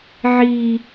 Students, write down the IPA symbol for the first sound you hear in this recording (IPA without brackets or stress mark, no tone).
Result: ʕ